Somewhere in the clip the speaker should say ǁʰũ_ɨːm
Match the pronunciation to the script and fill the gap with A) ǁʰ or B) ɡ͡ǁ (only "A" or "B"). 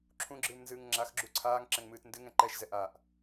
B